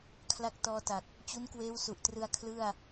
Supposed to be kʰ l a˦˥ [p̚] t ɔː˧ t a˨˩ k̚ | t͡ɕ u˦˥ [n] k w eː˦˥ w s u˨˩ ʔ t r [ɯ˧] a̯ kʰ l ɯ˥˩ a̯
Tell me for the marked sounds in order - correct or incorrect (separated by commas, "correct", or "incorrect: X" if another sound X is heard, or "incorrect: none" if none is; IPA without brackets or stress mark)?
incorrect: k̚, correct, correct